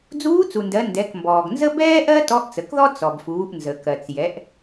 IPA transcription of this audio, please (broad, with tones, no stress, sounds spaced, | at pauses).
d͡z uː˧˥ t͡s u˩ n d ɜ˩˧ n d ɛ˩˧ k m b ɔː˩ ɡ n z ə˥ b ɛː˥ ʔ ɜ˥ t ɔ˧˥ ʔ t͡s ə˩˧ k ð ɔ˥ t͡s ɔ˩ b f uː˩˧ ʔ n z ə˩ k ɜ˩ t͡s j ɛ˩˧ ʔ